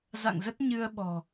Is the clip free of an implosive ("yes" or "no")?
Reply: no